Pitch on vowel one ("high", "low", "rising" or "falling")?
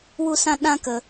high